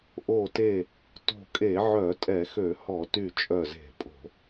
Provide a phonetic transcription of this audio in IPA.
ʔo˧˩te˧˩ | to̤˧˩kʼe˧˩˧ʕœ˧˩˧ tʼɛ˧˩˧xø˧˩˧hɔ˧˩˧ty˧˩ t͡ʃʼœ˧˩ze̤˧˩˧pʼo̤˧˩˧

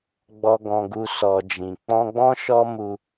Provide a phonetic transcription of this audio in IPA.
ɡ͡bɔ˨ɡɔ̃˨ɡu˨ sɔ˨d͡ʒĩ˨k͡pɔ̃˧ɡ͡bɔ̃˦ ʃɔ˦ mu˧

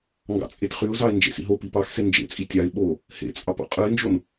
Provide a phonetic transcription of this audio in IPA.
ŋɡɑ̰t͡sʼetχyʊ̯zɑɪ̯ nd͡ʒḛsḭɦopi pɑxse nd͡ʒḛt͡sʼi tʲɑɪ̯ ɓo | hḛt͡sʼɑp o̰qʼɯɪ̯nd͡ʒon

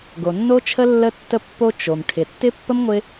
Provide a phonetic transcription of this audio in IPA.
ɡo˩nːo˥t͡ʃʰə˥ lːə˥tːə˥pːo˥ t͡ʃo˩m ʈʰɪ˩tːɪ˥pːə˥m ŋʷɪ˥

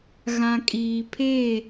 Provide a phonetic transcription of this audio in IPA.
ɣã˨kʼiː˨pʰe˦˨

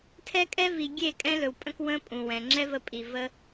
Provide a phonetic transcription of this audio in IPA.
tʰɛ˧kʼɛ˧vi˨ ɡʲe˦˨ kʼɛ̃˦lɵ˨wpʼə̃˦k wə̃˦pʼũ˨ wɛ̃˨ ŋ͡ǁɛ˦və˧pʼi˨ və˦

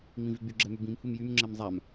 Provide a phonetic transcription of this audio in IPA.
ŋ͡mĩvyɡ͡by ɡ͡ǁɛmybĩm humjym ŋ͡ǁɛmzˤam

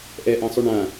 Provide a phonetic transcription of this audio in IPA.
ʔɛʔãsˤy ɳã

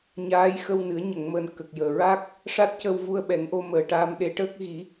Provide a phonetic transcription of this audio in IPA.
ɲaː˧˥jxə˧wnɨ˨˩˦ə̯ ɲə˨˩˨ŋməː˨˩n kə˨˩k̚jəː˨˩ɹaː˦˥k̚ | ʂa˦˥t̚cə˧wvu˧ə̯ ɓɛ˨˩˦ŋʔo˧məː˨˩ ʈa˧mɗe˧˥ʈəː˦˥k̚ ɣi˨˩˦

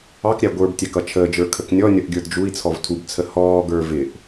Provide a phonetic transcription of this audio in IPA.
ɑkɾʲæ ɡʷə˞btʲæk ʌt͡ʃʰəːd͡ʒə˞ kʰəknʲɔnʲʌʔ ɡʲə˞dd͡ʒui̯t͡sʰɔv tʰubt͡sʰə hɔːɡə˞ vɪʔ

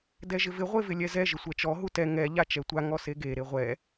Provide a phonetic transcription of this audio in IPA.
dɛʒɪvɪ ʁʷevɪlʲɛzɛ ʒɪsʷɛt͡ʃɔ ɦutɛ ŋɛ ʎat͡ʃɛtʷa ŋɔseɡe ɾeʁʷɛ

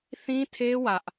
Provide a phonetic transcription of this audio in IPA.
θĩ˦tʰe˦ wä˦ʔ

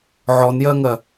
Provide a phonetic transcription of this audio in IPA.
ʕɔnjɜŋɜ

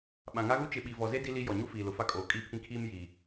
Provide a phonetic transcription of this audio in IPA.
ɓã˨ŋa˦ɣu˦ t͡ʃɪ˨ɓi˨vɔ˨ze˦ di˦li˦ jɔ˨ɲu˦ fiː˨lʊ˨fa˦kʼoː˨ kʼi˦˨pʰĩ˦kʰiː˦m ji˨

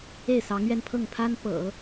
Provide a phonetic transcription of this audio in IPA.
e˥˩ɪ̯sɑ˧˥ŋɥɛ˥˧n pʰɤ˥˩ŋpʰa˥n pɤ̰˨˩˦

